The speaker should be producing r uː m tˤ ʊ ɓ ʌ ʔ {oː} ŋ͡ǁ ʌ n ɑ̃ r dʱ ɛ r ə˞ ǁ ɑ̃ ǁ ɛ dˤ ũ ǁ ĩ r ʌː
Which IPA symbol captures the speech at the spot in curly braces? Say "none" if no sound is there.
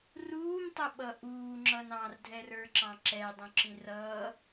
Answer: uː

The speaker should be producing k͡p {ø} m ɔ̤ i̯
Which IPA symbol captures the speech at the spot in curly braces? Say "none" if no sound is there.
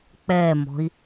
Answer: ɛ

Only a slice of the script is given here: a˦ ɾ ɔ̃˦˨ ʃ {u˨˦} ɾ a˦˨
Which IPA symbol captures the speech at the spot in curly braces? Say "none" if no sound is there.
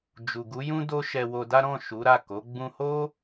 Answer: u˨˦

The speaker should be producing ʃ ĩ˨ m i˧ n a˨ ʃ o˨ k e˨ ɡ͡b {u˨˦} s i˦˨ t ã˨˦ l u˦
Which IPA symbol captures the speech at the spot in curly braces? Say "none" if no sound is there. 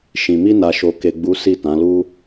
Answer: u˨˦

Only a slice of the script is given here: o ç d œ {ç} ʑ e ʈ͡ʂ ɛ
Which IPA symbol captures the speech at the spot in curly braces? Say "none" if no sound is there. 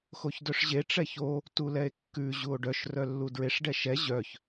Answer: ʂ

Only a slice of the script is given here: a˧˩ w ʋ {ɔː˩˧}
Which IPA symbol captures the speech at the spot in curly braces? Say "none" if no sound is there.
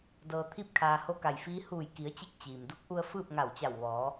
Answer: ɔː˩˧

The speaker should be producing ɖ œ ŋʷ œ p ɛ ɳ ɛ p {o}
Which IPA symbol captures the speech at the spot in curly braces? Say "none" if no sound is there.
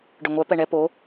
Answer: o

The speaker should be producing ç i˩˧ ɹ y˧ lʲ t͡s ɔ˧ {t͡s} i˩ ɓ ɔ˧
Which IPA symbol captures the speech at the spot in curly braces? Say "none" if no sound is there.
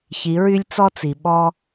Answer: t͡s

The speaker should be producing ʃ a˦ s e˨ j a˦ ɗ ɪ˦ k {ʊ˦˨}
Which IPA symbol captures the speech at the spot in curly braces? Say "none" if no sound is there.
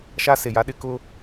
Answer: ʊ˦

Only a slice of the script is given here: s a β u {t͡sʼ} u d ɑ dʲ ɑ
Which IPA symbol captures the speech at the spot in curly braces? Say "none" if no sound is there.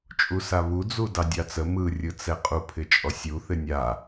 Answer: d͡z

